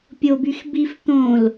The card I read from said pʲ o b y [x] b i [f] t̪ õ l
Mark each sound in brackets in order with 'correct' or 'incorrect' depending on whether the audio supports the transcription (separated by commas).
correct, correct